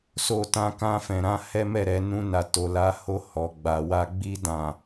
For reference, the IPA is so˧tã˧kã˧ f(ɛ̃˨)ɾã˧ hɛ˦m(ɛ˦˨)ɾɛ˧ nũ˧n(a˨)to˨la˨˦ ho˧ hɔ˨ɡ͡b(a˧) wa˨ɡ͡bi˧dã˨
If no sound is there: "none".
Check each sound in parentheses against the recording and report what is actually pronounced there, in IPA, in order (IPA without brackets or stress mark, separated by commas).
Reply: ɛ̃˨, ɛ˦˨, a˨, a˨